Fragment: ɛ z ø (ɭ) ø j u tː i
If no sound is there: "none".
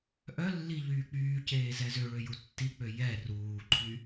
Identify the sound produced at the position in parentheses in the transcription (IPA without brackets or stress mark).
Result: ɭ